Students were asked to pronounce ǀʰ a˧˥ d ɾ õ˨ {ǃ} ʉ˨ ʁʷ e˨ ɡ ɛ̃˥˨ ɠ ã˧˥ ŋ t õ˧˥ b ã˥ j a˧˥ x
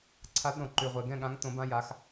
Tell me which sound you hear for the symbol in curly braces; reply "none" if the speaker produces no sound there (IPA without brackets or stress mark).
ǃ